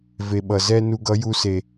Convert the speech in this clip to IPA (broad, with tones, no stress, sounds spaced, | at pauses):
v e˨ ɓ ʌ˨ z ɛ˦ n u˧ ɡ ʌ˨˦ j u˧ s e˨